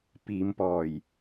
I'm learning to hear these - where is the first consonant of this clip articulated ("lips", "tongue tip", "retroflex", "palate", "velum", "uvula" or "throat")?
lips